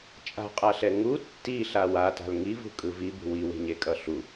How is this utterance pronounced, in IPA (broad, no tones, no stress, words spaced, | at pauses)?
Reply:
t͡ʃʼa̤qʼaɬɛ ŋu tːiɬa wata̤l ŋivṳkʼɯ vibṳ wiwe̤ɲekʼʌ ɬu